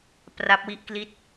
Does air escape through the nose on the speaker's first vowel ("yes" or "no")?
no